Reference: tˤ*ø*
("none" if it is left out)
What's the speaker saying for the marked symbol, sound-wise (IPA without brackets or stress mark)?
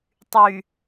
y